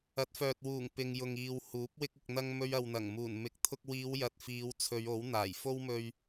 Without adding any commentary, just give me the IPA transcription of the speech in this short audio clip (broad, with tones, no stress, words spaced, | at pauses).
ɐ˨˥t̚fœː˨t̚wuː˨˩ŋ pɪ˨ŋ jʊ˨ŋiː˨whuː˨˥p̚ wɪ˧k̚ɪ˨k̚n̪ɐ˧ŋ mɵ˧ɥɐ˨wn̪ɐ˨˩ŋmuː˨˩n mɪ˨k̚t̪ʰʊ˧k̚wiː˨˧w jɐ˨t̚fiː˨˧w t͡sʰɵ˨˧ɥo˨˥w n̪aː˨˩j fo˥wmɵ˧ɥ